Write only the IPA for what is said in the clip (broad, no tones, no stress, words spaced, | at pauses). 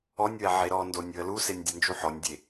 ɔnʲwɛ ʕeɾɔndonʲ wəlusenʲ dʲɐnd͡ʒuħɔnʲdʲe